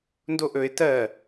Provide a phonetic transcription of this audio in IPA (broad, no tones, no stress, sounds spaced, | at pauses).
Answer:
n d o ʔ ɵ ɪ̯ t ɜ